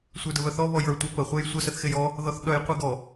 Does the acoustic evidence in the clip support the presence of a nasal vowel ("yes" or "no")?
no